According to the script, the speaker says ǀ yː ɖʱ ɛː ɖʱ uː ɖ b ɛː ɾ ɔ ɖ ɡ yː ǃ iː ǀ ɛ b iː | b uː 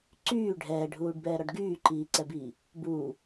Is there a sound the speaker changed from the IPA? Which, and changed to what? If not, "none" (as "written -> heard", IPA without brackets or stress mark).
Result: none